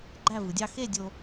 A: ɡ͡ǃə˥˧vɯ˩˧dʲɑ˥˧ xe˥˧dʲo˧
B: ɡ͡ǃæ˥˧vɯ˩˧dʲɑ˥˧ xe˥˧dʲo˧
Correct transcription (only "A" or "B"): B